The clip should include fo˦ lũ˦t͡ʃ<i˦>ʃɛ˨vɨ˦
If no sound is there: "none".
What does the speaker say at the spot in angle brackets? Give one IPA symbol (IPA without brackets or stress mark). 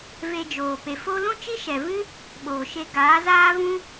i˦